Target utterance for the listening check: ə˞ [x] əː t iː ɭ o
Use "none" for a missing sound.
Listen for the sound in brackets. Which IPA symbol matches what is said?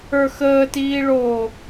x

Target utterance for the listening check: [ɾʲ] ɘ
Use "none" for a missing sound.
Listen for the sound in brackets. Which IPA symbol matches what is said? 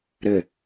ɾ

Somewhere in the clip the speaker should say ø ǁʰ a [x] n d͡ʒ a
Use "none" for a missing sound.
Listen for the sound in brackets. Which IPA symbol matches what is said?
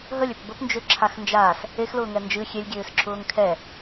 x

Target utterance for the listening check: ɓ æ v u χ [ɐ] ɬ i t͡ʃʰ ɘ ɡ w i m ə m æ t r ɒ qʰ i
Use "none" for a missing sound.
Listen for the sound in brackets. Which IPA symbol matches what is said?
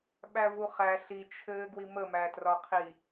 æ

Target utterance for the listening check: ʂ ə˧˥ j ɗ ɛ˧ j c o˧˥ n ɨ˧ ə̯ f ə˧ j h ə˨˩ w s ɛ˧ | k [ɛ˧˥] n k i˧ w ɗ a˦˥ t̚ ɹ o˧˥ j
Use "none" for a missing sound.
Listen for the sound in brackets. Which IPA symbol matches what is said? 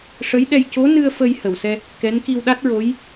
ɛ˧˥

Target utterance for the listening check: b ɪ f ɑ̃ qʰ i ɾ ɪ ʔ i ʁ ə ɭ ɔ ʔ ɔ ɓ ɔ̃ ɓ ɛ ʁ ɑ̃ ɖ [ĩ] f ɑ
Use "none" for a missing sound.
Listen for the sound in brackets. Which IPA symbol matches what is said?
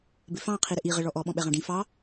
ĩ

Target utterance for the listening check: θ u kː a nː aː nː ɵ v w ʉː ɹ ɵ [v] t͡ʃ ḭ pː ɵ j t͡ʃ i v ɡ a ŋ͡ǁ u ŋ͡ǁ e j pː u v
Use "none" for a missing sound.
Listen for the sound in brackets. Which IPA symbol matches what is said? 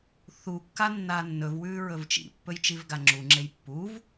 v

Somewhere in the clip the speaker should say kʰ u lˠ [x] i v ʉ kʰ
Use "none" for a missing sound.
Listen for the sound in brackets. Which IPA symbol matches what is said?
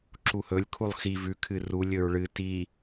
x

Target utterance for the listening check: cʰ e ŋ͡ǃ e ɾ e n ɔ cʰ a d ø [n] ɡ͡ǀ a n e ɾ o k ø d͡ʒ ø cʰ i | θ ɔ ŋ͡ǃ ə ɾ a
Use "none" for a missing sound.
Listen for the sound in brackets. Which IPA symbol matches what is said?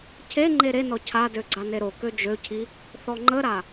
none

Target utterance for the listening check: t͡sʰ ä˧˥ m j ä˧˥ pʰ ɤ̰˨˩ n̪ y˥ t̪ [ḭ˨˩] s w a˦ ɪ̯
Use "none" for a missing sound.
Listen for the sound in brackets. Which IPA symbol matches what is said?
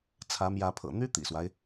ḭ˨˩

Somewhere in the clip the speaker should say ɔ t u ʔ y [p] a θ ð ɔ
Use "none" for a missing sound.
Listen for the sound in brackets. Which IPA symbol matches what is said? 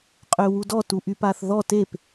p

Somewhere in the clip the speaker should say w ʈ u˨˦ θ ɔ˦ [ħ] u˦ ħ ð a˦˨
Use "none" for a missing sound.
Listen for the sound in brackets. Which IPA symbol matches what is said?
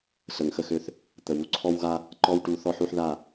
ħ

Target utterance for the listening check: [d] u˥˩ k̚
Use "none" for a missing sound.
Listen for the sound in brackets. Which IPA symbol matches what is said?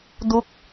d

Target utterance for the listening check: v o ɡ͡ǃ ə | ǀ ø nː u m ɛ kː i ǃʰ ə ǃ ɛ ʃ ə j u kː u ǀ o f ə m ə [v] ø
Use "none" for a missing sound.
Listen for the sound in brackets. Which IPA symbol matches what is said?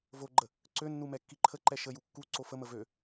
v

